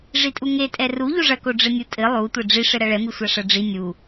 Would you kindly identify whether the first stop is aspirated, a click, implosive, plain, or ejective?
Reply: ejective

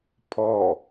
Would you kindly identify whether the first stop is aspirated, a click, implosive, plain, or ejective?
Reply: aspirated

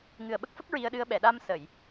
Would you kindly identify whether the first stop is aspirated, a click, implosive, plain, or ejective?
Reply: implosive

